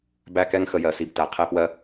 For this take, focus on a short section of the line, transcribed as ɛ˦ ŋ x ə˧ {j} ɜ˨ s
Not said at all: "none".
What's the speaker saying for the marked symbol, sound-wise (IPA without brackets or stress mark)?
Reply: j